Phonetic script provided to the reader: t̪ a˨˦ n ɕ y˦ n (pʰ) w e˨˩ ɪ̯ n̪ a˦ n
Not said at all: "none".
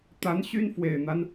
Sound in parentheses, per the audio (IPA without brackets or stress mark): f